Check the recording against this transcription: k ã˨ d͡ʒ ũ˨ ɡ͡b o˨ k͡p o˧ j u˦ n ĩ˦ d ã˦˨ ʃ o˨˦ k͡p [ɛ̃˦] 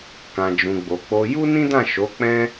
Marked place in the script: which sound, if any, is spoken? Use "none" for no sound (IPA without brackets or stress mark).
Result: ɛ̃˦